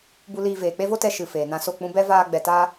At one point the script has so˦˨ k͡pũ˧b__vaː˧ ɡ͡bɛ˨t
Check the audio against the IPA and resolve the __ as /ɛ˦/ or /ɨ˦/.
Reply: ɛ˦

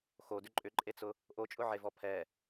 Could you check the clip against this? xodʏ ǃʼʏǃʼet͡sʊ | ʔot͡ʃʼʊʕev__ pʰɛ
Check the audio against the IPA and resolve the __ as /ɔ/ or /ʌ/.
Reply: ɔ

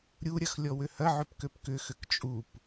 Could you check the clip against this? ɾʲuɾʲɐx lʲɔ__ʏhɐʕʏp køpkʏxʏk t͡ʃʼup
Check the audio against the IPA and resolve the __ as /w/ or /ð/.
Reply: w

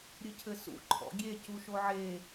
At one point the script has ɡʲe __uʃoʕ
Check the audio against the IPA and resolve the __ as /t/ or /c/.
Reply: c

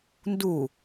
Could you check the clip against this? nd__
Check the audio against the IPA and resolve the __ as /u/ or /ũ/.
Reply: u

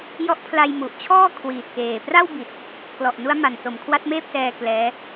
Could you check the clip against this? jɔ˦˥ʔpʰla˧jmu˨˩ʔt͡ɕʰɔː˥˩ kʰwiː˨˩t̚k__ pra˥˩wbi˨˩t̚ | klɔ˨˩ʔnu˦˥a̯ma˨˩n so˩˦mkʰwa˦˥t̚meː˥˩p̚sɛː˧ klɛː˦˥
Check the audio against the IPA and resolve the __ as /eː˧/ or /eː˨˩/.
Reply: eː˨˩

